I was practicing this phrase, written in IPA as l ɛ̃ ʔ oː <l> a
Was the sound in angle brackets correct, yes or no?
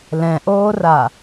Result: no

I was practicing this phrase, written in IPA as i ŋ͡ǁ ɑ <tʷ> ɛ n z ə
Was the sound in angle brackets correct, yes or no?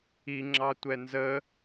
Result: yes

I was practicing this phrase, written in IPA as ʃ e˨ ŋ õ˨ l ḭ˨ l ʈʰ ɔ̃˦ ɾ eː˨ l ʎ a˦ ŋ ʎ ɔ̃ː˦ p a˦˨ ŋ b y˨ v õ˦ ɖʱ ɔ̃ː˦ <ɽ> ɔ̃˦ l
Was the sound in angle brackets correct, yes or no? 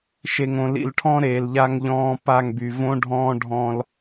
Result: no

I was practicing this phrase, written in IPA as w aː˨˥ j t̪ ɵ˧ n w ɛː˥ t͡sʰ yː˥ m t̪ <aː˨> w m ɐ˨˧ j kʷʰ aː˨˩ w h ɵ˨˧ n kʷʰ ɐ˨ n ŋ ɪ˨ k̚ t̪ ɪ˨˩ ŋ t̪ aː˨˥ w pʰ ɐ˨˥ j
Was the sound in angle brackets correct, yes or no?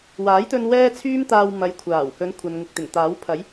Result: no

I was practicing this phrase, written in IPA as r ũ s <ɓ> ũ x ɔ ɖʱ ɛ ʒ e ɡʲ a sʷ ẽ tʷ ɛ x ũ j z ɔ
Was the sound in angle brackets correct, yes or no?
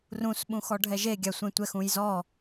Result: yes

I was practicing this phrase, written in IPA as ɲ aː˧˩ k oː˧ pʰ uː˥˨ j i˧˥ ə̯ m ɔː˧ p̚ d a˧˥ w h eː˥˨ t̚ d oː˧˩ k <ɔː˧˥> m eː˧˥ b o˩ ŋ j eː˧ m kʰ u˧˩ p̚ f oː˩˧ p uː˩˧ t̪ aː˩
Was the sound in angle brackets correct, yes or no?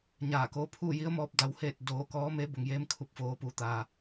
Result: yes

